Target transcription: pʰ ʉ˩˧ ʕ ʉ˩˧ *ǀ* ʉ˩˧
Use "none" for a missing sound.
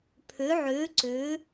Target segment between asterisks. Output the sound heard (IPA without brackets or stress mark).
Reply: ǀ